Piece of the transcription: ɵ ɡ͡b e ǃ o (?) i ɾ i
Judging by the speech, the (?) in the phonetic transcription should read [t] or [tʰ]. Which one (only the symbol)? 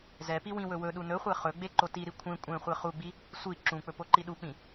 t